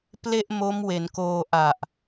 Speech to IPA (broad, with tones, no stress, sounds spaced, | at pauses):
p l e˥˩ ʔ m o˦˥ m w e˩˦ n k oː˧ ʔ a˨˩ ʔ